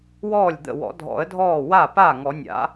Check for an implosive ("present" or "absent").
absent